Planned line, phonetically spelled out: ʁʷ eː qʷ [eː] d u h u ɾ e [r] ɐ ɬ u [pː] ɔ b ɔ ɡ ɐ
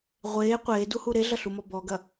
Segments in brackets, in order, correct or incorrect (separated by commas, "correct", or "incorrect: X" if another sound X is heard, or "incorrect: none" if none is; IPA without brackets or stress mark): correct, incorrect: ɮ, incorrect: m